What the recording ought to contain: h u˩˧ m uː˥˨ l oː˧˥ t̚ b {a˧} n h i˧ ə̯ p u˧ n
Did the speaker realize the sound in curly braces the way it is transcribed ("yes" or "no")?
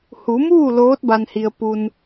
yes